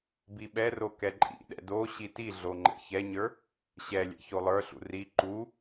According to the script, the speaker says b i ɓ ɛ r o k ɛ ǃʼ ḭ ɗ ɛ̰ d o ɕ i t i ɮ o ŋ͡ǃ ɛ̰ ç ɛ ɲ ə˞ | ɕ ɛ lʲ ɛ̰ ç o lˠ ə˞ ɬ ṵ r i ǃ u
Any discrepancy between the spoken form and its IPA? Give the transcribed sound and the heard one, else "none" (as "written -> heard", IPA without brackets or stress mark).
none